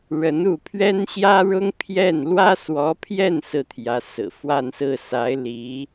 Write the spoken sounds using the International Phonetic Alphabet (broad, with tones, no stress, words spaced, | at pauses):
ɻə˧˥n u˥˩ pʰɥɛ˥nɕjä˥ɻʊ˥ŋ pʰjɛ˥˩n lwä˥swɔ˧˥pʰjɛ˥˩n sɹ̩˥t̪ʰjä˧˥sɹ̩˨˩ fwa˥˧nsɹ̩˥˩sa˧˥ɪ̯ li˧˥